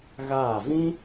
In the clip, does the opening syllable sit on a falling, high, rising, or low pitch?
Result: falling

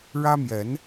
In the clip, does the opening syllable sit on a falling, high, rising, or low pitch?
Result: high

